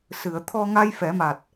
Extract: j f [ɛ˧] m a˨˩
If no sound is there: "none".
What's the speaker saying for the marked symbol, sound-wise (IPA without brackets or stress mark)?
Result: ɛ˨˩˦